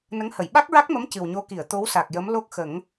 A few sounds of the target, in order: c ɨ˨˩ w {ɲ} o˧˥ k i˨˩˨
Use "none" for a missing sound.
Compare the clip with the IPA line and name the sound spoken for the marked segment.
ɲ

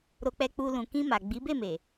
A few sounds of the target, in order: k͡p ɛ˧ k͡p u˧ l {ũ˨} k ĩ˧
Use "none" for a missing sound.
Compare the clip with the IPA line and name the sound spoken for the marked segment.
ũ˨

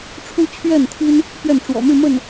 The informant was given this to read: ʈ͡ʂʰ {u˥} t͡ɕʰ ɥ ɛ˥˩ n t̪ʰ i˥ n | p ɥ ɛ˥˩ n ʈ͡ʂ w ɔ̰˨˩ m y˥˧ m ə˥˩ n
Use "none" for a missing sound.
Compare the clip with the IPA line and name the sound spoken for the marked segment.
u˥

